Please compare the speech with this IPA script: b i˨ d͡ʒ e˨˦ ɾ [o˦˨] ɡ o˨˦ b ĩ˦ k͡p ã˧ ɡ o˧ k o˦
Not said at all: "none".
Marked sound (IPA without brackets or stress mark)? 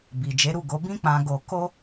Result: u˦˨